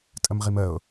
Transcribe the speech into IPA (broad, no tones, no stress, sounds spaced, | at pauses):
tʼ ə m ʁ i m ə ʊ̯